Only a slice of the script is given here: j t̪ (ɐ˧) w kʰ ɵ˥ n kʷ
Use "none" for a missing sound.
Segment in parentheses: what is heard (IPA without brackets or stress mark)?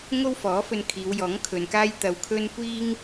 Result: ɐ˧